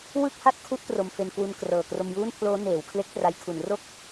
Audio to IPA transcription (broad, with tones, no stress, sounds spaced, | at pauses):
w ɯ˥˩ k̚ h a˥˩ t̚ kʰ u˦˥ ʔ t r o˧ m f e˧ n k w u˧ n k r ɤː˨˩ k r o˧ m j uː˥˩ n pʰ l oː˦˥ n eː˩˦ w kʰ l e˦˥ k̚ t r a˧ j kʰ u˩˦ n r o˥˩ k̚